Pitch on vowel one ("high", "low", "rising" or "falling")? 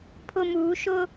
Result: high